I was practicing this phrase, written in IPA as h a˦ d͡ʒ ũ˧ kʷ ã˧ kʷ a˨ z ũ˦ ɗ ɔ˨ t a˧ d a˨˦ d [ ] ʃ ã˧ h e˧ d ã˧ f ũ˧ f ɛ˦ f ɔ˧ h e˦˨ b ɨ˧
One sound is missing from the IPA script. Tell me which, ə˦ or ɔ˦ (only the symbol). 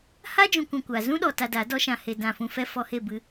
ɔ˦